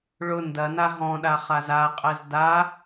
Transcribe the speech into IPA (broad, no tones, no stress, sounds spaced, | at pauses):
ɭ ʊ n d ɐ n a ɦ ɔ̃ ɗ a χ a z a qʼ ɛ z d a